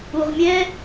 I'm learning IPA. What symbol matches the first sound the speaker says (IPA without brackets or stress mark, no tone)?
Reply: u